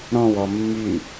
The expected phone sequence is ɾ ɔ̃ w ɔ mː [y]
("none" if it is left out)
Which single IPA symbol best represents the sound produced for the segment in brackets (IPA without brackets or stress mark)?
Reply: y